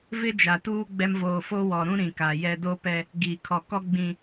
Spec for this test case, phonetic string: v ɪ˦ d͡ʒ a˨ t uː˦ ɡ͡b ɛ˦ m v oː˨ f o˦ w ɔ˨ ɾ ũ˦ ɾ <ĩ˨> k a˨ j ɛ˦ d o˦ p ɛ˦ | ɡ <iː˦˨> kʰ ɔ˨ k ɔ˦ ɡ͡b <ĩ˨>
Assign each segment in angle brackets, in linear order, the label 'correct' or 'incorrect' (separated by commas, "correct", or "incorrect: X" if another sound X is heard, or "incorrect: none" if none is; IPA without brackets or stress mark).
correct, incorrect: iː˨, correct